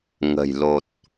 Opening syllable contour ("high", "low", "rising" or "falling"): low